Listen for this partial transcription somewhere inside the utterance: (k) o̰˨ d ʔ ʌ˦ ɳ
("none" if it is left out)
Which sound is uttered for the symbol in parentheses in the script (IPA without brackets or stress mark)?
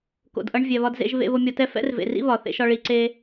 k